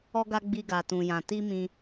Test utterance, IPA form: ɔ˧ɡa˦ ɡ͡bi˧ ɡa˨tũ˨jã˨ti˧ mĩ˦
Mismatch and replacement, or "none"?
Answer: ɔ˧ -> ɔ˦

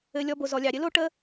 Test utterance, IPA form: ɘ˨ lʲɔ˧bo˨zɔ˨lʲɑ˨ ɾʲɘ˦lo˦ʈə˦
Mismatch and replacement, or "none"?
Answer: none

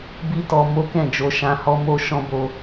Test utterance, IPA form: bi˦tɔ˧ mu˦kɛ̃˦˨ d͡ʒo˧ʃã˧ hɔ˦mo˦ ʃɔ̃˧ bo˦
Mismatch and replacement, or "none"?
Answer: u˦ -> o˦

